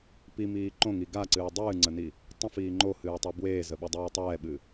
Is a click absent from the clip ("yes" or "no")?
no